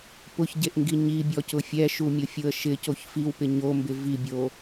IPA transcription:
p ʊ ç ɟ e ʔ ŋ ɡ i ɲ i bʲ ɔ c ʊ fʲ ɛ ʃ u mʲ ʊ fʲ ʊ ə̯ ʃ ɪ c o ç f i w p ɪ ɲ o m b ɪ v i bʲ o

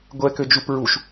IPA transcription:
ɡʷ ɛ k ø d͡ʒ u p ɹ u ʃ

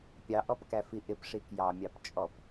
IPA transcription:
pʲ ɑ ʔ ɔ p k æ f i ʔ ɪ p ʂ i k j ɑ mʲ ɑ p t͡ʃʼ ɔ p

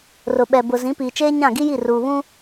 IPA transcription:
r ʊ˨ ɓ ɛ˨ b ʊ˨ z ĩ˨˦ p iː˨ t͡ʃ eː˦ ɲ ã˦˨ ɡ i˦ j i˦˨ r uː˨ β ũ˦

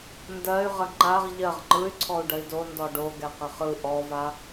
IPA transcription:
n d ɜ y̯ ʁ ə ŋ͡ǃ a ʁ ʎ ɜ ʁ ŋ͡ǃ ɯ y̯ ǀʰ ɔ u̯ ɖ ə i̯ d o n d ɔ ɖ o ɡ ɛ q ə χ ɯ ʔ ɔ v a

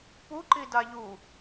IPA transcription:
p u ǃ i d a ʎ u

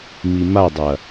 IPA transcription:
m i m a dˤ ɐ

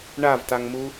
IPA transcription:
ɳ a v t a ŋ m u

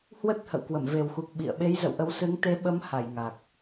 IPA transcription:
h w ə˦˥ t̚ h ə̰˧˨ w k w ə˧˩ m v e˨˩ w x u˨˩ k̚ ɓ ḭ˧˨ ə̯ ɓ e˨˦ j z ə̰˧˨ w ʔ ə˨˦ w s ɨ˨˦ ŋ t̪ e˨˦ ɓ ə˨˦ m h a˧˩ j ŋ a˨˩ k̚

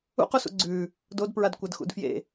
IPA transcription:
ṵ q u s ṵ ɡ͡ǀ ʉː | d o d p ɹ a d kʷ ɐ d x ṵ d f j ḛ

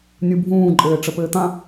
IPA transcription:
nʲ u bʱ ũː ǃʼ ɘː ʈ͡ʂ ə p ɘː t̪ ã

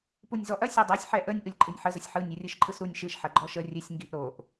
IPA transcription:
p u nʲ z ɔ ʔ ɐ sʲ o dˤ o sʲ ħ ɛ ʔ ə nʲ ʔ ɯ lʲ ǃʼ ɨ nʲ ħ ə z ə sʲ ħ ɯ nʲ u rʲ ɯ ʃ ǃʼ ɯ s ɾ u nʲ ʃ ɨ ʃ ħ ɐ ɡ͡ǃ ɔ ʃ ə rʲ ɨ sʲ ŋ ɡ i ʔ ɾ o ʔ

